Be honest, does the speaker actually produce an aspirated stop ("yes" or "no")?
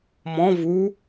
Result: no